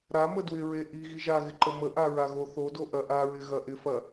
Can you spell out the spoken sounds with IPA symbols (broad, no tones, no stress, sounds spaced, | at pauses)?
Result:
ɾ a m ə d w ɪ ɹ e ʔ i ɣ i ʒ a ɣ ɪ ǃ ə m ə ʔ a ɹ a ɣ o θ o d o ʔ ɐ ʔ a ɹ ɪ ɣ ɐ ʔ ɪ f ɐ